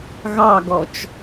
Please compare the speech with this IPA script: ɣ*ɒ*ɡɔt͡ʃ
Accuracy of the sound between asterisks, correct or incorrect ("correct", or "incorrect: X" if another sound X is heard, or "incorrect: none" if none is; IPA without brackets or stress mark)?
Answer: incorrect: ɑ